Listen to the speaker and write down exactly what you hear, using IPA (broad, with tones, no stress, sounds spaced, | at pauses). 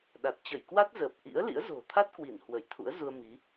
ɗ a˨˩ t̚ t͡ɕ ə˧˩ j k w a˦˥ t̚ z əː˨˩ p̚ ʔ ḭ˧˥ ə̯ l ḭ˧˥ ə̯ z o̤˨˩ t̪ʰ a˦˥ t̚ k w i˧˩ n h w ə˧˩ j t̪ʰ ṵ˧˥ ə̯ z u˧ ə̯ m i˨˦